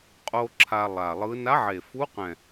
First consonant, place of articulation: uvular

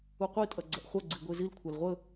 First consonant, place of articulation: uvular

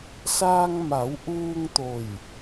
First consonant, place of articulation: alveolar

